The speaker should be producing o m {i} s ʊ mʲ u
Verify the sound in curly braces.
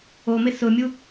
incorrect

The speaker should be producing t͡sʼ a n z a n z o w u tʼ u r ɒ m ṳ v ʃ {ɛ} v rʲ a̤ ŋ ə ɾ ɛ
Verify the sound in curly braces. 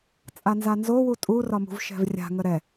incorrect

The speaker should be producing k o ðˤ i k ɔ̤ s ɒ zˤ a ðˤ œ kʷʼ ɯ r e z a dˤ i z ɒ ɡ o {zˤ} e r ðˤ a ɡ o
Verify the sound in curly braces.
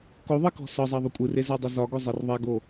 correct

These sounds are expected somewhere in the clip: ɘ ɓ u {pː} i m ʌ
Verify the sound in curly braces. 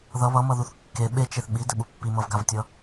correct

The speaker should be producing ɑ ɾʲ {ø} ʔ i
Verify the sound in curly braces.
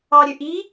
correct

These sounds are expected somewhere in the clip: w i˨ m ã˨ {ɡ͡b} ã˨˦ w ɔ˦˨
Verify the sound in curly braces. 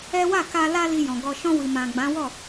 correct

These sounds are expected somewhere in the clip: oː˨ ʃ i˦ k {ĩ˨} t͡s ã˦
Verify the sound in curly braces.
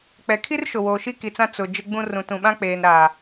incorrect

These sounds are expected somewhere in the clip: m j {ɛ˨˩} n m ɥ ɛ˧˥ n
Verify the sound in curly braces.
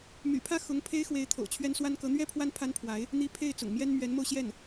incorrect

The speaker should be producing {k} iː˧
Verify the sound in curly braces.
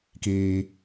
correct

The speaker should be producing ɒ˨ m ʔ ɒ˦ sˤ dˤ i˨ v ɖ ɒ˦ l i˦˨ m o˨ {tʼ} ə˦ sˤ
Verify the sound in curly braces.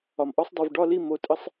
correct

